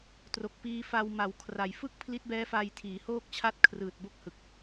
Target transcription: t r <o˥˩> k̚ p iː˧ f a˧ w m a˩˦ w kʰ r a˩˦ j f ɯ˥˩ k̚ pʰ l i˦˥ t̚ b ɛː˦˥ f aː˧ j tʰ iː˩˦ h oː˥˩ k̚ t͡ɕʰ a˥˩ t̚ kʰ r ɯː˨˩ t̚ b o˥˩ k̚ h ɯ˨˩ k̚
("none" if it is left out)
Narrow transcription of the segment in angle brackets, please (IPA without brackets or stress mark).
o˨˩